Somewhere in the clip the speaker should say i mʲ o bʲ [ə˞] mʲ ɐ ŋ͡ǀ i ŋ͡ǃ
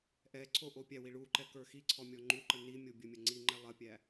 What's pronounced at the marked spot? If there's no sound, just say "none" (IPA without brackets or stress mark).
ə